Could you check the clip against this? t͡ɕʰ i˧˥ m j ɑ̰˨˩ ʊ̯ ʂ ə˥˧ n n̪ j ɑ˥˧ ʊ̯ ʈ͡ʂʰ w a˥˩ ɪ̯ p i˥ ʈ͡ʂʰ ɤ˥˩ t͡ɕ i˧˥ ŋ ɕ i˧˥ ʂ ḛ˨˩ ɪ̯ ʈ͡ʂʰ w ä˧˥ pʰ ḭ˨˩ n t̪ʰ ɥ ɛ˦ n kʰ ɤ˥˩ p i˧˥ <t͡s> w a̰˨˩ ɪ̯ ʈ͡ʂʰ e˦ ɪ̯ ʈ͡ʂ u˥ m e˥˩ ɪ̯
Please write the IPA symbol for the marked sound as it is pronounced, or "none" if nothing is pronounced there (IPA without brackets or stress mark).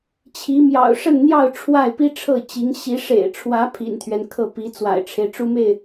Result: t͡s